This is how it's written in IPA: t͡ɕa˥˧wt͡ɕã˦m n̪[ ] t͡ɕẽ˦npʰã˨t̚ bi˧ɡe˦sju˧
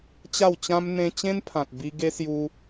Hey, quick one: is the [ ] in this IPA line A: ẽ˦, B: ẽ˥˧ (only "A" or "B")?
A